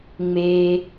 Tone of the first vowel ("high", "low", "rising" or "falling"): low